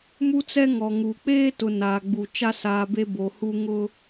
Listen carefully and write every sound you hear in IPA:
m u˦ t͡s ɛ˦ ŋ ɔ˨ ŋ uː˨ k͡p eː˦ t ʊ˨ n a˨ ɡ͡b u˨ t͡ʃ a˦ s aː˨ b e˦ b o˨ h u˦ ŋ ʊ˦

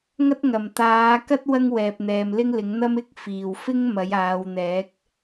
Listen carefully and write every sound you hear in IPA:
ŋ ɐ˥ t̚ ŋ ɐ˨˩ m t̪ aː˨˧ k ɐ˥ t̚ w ɐ˥ ŋ w ɛː˨ p̚ n̪ ɛː˨ m l ɪ˥ ŋ l ɪ˨˥ ŋ n̪ ɐ˥ m ɪ˥ k̚ f iː˨˩ w f ɪ˥ ŋ m ɐ˨˥ j aː˨˧ w n̪ ɛː˨˥ k̚

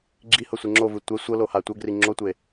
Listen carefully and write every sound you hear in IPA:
ɡ͡ǁ i h ɤ sʷ e ŋ͡ǁ o v ɯ tʷ ɛ sʷ ɤ l o h a tʷ ɤ ɡ r i ŋ͡ǁ o tʷ e

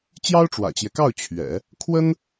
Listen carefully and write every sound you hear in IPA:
t͡ɕ j ɑ˥ ʊ̯ ʈ͡ʂ w ä̰˨˩ t͡ɕ j ɛ˦ k ɑ˥˩ ʊ̯ t͡ɕʰ ɥ ɛ̰˨˩˦ | kʰ w ə˥ n

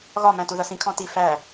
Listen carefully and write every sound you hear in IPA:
ɣ ɒ m æ̃ t u ð ʌ s ĩ kʰ ɔ̃ t i f æ

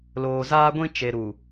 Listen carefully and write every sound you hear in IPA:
l oː˨ z aː˦ ɡʷ ĩ˦ t͡ʃ e˨ ɾ u˨

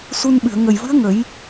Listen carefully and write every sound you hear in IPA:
s u˧ n ɓ ɨ˨˩˨ ə̯ ŋ ə˨˩ j v ɨ˧˥ ə̯ ŋ ə˨˩˦ j

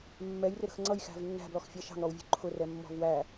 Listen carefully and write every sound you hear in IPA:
mː ɛ j r ɪ ɾ ə̤ x ŋ͡ǀ ʌ j x æ̤ v nː æ̤ b l ɔ x fʲ ɑ ʃ ɑ̤ ŋ ɾ ɔ w vʲ ṳ ǃʰ ʊ r ɛ mː ɔ̤ v w æ

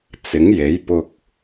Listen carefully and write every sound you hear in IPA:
t͡s ɪ˨˥ ŋ j e˨˥ j p ʊ˧ k̚

